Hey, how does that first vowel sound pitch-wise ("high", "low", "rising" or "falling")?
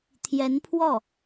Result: rising